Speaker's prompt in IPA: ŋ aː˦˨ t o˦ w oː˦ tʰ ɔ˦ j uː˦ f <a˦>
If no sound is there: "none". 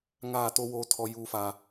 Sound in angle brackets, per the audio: a˦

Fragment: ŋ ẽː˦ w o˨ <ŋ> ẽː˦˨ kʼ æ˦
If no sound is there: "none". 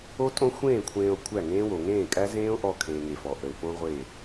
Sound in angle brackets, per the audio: ŋ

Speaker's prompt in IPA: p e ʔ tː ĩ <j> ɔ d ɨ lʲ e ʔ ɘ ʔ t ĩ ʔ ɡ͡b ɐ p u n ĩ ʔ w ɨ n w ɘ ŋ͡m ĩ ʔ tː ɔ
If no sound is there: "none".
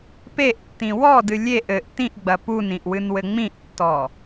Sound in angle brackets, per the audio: w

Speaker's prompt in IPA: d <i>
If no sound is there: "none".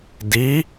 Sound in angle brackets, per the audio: i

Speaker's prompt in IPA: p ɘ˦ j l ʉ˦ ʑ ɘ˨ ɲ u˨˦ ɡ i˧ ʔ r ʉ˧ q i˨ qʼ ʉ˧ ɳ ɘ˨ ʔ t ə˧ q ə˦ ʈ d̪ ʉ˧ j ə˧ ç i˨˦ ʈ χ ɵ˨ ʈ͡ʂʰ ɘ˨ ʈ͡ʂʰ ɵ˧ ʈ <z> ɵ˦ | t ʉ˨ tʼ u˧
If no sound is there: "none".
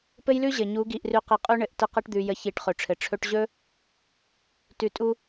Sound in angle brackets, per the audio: ʑ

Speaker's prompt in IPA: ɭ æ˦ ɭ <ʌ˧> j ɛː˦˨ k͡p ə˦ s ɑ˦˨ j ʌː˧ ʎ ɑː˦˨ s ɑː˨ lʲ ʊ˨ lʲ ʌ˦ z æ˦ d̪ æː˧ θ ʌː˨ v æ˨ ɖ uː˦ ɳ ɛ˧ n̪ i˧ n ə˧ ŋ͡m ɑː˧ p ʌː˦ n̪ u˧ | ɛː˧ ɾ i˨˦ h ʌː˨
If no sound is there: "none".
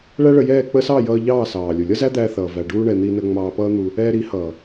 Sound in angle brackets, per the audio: ə˧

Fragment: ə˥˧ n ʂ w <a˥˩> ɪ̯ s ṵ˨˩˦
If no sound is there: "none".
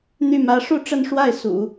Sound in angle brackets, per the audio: a˥˩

